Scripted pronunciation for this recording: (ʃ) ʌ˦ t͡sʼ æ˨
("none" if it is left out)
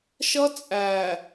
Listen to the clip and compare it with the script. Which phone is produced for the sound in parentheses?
ʃ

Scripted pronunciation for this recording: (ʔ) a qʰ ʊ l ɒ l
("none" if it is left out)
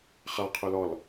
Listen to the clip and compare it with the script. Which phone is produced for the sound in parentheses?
χ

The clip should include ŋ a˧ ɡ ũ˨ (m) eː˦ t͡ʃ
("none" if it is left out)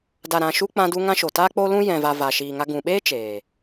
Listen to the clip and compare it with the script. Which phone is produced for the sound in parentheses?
ɓ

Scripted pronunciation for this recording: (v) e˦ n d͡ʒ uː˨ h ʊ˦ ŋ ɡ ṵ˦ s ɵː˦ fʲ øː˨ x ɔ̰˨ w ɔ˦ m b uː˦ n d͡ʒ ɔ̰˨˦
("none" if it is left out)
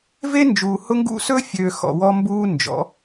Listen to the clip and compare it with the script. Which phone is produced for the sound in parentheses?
v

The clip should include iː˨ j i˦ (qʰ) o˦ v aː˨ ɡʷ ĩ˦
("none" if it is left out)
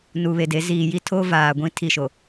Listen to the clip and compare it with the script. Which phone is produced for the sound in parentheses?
tʰ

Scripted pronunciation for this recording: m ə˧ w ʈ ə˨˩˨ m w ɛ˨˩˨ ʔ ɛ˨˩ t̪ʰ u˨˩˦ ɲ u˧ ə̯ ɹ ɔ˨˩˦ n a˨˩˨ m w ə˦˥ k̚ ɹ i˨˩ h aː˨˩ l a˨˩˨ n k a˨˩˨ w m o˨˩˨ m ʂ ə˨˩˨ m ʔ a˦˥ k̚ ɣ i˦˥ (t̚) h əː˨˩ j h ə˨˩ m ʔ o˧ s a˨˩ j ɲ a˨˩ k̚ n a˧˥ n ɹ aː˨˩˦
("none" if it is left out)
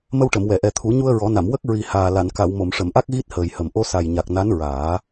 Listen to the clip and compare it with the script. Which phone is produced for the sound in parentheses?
t̚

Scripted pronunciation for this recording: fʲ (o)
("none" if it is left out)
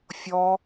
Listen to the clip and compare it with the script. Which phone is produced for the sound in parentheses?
ɔ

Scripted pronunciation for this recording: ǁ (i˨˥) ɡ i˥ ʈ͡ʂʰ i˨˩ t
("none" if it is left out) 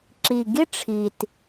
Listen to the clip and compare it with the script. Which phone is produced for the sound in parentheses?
i˨˩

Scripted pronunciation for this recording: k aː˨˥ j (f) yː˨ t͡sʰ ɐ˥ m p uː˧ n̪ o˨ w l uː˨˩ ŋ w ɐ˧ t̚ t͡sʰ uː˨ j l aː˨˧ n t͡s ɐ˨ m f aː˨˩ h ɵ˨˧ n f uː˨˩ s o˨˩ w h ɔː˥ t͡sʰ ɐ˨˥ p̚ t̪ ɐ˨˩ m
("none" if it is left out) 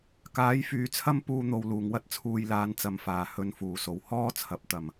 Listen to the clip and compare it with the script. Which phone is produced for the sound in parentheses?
f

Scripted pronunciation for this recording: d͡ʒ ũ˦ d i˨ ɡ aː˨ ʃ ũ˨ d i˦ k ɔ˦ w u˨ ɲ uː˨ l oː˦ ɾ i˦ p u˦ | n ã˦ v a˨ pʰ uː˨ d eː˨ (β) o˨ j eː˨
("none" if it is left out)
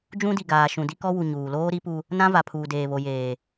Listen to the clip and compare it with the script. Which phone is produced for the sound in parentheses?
β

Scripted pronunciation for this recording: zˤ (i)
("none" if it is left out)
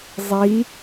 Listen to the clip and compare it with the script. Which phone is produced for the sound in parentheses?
i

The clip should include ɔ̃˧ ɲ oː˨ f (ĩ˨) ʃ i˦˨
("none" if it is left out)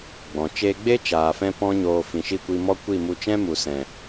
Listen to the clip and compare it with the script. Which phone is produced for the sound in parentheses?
ĩ˨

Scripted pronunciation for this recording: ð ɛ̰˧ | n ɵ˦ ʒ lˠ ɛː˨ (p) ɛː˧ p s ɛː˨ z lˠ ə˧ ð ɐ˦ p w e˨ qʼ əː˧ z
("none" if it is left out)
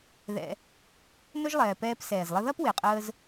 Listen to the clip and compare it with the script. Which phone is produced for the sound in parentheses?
p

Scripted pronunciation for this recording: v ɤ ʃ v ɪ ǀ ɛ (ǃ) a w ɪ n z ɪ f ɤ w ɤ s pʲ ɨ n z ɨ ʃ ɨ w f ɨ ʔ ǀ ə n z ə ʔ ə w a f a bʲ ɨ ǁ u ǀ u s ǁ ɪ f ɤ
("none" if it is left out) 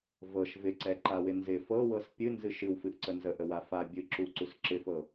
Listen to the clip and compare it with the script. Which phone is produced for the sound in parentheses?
ǃ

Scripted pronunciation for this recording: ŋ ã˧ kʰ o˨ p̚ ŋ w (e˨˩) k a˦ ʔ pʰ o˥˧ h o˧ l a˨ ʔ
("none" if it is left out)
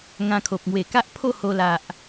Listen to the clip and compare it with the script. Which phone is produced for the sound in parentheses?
e˨˩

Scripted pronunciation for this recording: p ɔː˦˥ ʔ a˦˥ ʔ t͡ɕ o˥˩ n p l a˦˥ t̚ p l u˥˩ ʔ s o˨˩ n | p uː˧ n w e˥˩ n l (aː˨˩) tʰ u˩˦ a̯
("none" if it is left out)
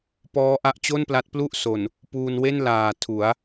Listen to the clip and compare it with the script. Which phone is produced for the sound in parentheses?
aː˨˩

